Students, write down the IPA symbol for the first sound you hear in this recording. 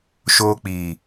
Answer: ʃ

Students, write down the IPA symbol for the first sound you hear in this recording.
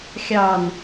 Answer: xʲ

